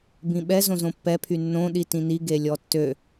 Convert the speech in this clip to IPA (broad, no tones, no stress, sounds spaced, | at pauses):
b ĩ ɓ ɛ z õ z õ pː ɛ pʰ y nː õ ɗ i t ĩ n i ɡ e lʲ ɔ tː ø